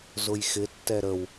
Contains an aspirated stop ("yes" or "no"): no